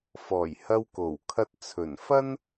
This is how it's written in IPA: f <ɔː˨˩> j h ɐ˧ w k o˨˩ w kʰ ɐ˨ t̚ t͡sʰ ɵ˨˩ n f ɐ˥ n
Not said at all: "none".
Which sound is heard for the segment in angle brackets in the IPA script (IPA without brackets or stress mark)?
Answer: ɔː˨˩